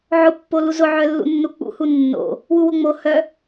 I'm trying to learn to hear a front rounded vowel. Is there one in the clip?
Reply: yes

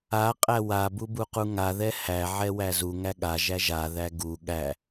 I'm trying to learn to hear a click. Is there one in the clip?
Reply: no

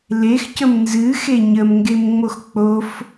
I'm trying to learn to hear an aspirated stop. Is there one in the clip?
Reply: no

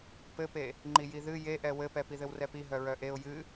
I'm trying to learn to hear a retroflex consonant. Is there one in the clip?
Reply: no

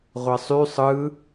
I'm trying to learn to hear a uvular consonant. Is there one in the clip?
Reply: yes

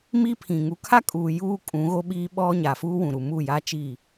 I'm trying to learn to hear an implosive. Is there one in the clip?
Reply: yes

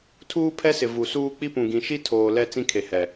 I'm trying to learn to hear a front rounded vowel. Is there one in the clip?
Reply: no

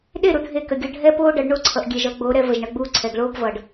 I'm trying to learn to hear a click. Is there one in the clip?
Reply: yes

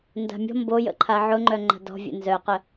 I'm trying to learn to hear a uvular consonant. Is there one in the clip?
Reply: yes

